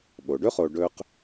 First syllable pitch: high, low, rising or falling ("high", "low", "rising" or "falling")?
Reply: low